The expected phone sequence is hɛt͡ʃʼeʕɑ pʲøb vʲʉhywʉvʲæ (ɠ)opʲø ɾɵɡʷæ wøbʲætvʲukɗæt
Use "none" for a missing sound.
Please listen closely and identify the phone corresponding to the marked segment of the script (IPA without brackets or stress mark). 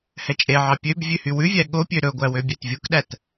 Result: ɠ